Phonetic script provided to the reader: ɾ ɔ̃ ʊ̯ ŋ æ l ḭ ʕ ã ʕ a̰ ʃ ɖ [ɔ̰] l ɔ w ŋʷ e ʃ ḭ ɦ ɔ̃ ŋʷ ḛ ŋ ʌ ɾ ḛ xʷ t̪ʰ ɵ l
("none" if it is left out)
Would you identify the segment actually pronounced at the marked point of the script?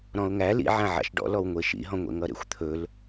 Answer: ɔ̰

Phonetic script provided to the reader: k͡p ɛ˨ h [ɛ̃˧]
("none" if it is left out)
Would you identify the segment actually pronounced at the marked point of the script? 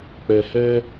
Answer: ɛ˧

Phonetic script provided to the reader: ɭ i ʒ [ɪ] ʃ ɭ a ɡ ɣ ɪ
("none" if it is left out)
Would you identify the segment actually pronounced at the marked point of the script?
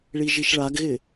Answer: i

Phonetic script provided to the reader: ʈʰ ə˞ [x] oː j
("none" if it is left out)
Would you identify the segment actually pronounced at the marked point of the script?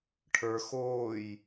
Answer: x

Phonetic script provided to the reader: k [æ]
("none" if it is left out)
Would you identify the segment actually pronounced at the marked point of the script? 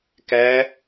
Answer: æ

